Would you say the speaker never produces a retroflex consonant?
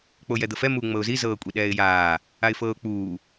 yes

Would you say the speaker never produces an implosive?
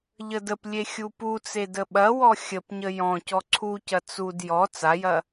no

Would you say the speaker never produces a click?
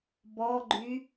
no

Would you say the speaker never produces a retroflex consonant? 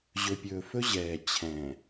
yes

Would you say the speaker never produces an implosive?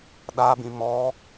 no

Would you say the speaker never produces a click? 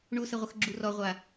no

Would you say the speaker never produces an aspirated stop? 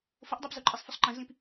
yes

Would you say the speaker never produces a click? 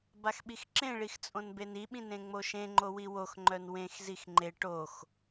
no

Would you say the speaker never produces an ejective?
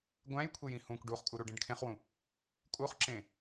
no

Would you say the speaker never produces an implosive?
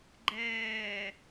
yes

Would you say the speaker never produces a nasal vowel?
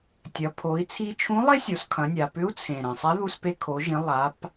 no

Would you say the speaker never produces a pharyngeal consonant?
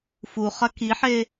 no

